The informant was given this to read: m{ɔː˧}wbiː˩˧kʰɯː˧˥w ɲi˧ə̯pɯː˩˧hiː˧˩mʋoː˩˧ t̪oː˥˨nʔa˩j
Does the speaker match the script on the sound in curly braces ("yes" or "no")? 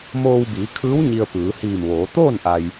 no